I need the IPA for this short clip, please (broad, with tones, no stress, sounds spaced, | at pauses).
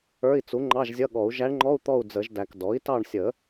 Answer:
ə˞˧˥˧ i̯ t͡s u˩˥ ŋ͡ǃ ɑ˧˥˧ ʒ zʲ ʌ˧˥˧ ɠ ɔ˨˩˦ u̯ ʒ æ˧˥ ɳ ŋ͡ǃ ɔ˧˥˧ u̯ t̪ ɔ˦˨ u̯ d͡z ə˨˩˦ ʒ d æ˨ k d ɔ˩˥ i̯ t ɑ˦˨ ɳ sʲ ə˨˩˦